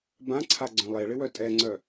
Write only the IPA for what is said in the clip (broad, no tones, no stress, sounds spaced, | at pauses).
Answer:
b ã ǀʰ a ɡ͡ǀ œ̃ lˠ e ɭ ɪ w œ tʼ ɛ ŋ͡ǀ œ